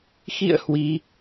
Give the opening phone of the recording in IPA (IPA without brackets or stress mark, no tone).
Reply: x